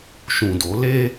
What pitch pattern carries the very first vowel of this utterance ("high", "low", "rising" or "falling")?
low